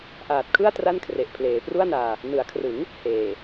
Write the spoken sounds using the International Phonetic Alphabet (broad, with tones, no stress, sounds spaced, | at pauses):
ʔ aː˨˩ t̚ kʰ ɯ˥˩ a̯ t r a˥˩ n kʰ r e˨˩ ʔ pʰ l eː˩˦ p r u˥˩ a̯ n aː˧ | n ɯ˩˦ a̯ kʰ r ɯ˩˦ ŋ | h eː˨˩